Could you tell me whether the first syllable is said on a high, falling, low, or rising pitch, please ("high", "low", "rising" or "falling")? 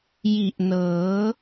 low